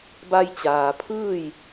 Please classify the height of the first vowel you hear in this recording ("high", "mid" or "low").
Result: low